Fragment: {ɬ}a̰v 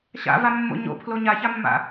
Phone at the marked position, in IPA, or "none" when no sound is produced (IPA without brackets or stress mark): ɕ